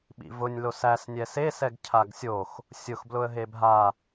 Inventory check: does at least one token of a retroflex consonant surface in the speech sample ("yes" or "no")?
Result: no